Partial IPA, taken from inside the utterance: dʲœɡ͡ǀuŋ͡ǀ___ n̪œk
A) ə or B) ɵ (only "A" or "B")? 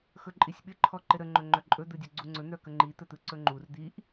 B